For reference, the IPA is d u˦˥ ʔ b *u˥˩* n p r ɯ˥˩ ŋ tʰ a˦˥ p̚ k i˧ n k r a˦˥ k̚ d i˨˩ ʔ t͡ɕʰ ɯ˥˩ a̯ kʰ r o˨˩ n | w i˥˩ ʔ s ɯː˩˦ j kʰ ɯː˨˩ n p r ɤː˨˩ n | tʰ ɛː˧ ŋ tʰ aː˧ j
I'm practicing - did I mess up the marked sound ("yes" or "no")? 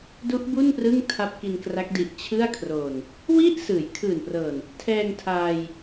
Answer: no